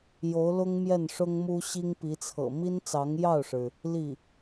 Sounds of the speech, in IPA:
jo˧˥ʊ̯lʊ˥ŋ mjɛ˥˩nʂʊ˥ŋmu˥ ɕi˥ŋpi˧˥t͡sʰɤ̰˨˩ mi˥nt͡sɑ˧˥ŋjɑ˥˩ʊ̯ʂɻ̩˩ | li˥˩

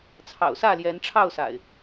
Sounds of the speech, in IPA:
t͡sʰɑ̰˨˩ʊ̯sä˥˨ ljɛ˨˦nʈ͡ʂʰɑ˥˨ʊ̯sa̰˨˩ɪ̯

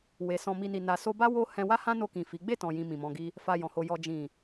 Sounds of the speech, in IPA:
we˨sɔ̃˧ mi˨ni˨ na˨so˧ba˦ wo˦ hɛ̃˧wa˦hã˦no˧ kĩ˨ fi˨˦ ɡ͡be˦˨tɔ̃˨jĩ˨ mĩ˨mɔ̃˧ɡi˦ | fa˧jɔ̃˨ho˧ jɔ˨ d͡ʒĩ˨

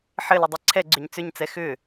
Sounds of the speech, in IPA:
ħɘlʏdˤi ǀʰɛɡ͡ǀʏɲ t͡sʏɲt͡sɛ xʏ

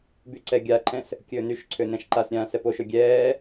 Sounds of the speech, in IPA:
byǀɛɡʲaǃʰɛ̃s | kʲɵːnyʃǀʰø nɛ̃ʃǃasɾʲãː sɛpoʃɵ ɡʲɛː

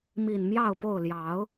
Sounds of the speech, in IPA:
mi˨˩n mjɑ˥˨ʊ̯po˥˨ʊ̯ ljɑ˨˦ʊ̯

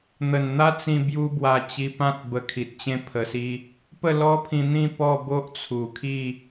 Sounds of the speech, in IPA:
n̪ə˨˩nn̪a˦t͡sĩ˧ bju˦bwa˧ t͡ɕi˧pã˦t̚ bə˧kʰi˨t̚t͡ɕẽ˦ pʰə˧si˦ | pə˥˧lɔ˦pʰĩ˧n̪ĩ˥˧ pɔ˥˧ bo˦ʔt͡sʰu˨˩kʰi˥˧

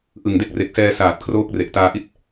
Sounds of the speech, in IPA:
ʔɯ˨˩ŋde˥˩k̚ re˨˩k̚sɛː˧saː˨˩t̚ kʰroː˦˥k̚re˨˩ʔ taː˧ʔi˦˥t̚

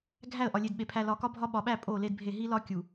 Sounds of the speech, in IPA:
ɡʱæ˦˨ə̯ʔɒ˨lʲe˨dɓe˨ pʰæ˨lɒ˨kɒ˦bʱɒ˦ ɓɒ˨ɓæ˦˨ pʼo˦˨le˦dbʱe˦˨ ɦi˦lɒ˦ kʲu˨

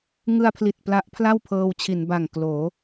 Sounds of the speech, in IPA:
ŋɯ˧a̯pʰli˨˩t̚ pla˦˥ʔpʰla˥˩wpʰɤː˧w t͡ɕʰi˩˦nba˨˩ŋkloː˩˦

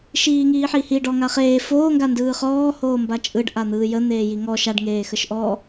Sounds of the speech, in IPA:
ʃiːŋiːħihi ɖɔŋaχeː foː ŋɡandɯːχɔː hoːmbat͡ʃʼɯɖ ʔan̪ɯːjə n̪eːjiŋɔ ʃaɖ ŋeːxəʃʔɔ

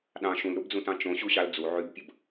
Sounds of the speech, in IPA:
ɗɑ̃ ʃũlɾubd͡zũtɑ̃ t͡ʃõɕuɕɑl d͡zu ʕybpʲəb

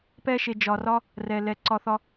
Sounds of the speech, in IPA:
pɛ˦ʃe˨ d͡ʒɒ˨rɒ˦ | rɛ˨lɛ˨ ǀɒ˨θɒ˨

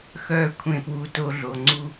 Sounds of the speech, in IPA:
xœː˦kʷʰẽ˦˨pwuː˧t o˧ɮo˨ŋ͡ǀu˦

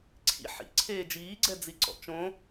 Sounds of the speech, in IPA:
ǀʰḭ ħḭǀʰeː d͡ʒiːɡ͡ǀɛ d͡ziǀɔ̰t͡ʃõ

